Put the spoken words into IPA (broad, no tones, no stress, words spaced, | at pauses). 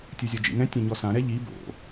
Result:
tʲuzʲɔd͡ʒḭŋɛ̃ tʲɛ̃ɲɔsã ɾɛʎi bo̰